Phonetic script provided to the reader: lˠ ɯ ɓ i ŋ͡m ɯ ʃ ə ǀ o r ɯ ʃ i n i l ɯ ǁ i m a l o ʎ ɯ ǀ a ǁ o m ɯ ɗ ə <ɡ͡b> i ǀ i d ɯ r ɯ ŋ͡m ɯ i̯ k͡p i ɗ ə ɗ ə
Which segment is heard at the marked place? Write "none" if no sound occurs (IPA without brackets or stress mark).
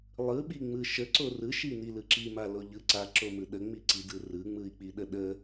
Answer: ŋ͡m